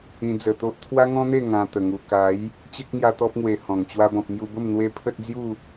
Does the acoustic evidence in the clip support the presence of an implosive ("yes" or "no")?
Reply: no